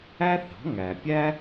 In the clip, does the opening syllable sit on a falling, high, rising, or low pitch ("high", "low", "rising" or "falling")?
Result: high